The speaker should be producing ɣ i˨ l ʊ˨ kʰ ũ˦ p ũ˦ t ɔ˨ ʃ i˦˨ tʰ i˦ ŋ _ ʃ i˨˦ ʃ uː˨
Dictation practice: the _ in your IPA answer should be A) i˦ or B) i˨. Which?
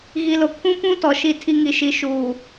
B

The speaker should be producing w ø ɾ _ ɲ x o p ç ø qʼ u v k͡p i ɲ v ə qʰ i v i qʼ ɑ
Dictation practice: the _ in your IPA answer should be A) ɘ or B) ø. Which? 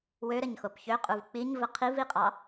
A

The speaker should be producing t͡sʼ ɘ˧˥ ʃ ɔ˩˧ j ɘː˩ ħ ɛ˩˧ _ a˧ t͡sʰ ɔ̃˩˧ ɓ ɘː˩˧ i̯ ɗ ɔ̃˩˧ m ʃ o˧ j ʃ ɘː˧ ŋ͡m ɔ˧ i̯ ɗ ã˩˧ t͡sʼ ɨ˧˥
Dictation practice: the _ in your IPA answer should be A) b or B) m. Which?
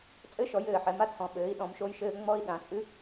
B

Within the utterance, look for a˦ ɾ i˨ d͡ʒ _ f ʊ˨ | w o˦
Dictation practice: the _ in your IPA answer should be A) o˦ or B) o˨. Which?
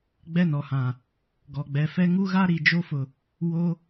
A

